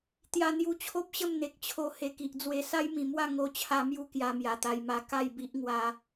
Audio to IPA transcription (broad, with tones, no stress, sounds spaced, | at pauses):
t̪ j a˧ n̪ j u˧ t͡ɕʰ o˦ p̚ ɕ ə˥˧ m n̪ e˨ k̚ t͡ɕʰ o˧ h e˨˩ k i˨ ʔ d͡z w e˨˩ s a˦ j m ĩ˨˩ m w a˥˧ ŋ o˧ t͡ɕʰ a˧ m j u˦ k j a˧ m j a˨˩ t̪ a˧ j m a˧ k a˥˧ j b i˦ ʔ ŋ w a˧